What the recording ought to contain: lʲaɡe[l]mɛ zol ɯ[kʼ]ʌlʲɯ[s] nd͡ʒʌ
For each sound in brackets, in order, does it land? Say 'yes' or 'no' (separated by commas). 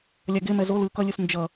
no, no, yes